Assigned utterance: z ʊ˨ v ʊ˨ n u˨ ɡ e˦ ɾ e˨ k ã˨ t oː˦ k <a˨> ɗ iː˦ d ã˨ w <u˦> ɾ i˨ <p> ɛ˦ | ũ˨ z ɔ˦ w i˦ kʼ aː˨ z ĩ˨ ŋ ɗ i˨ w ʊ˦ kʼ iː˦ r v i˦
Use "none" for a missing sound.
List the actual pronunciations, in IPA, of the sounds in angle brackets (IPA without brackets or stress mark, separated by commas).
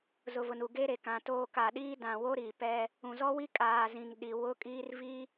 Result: a˨, o˦, p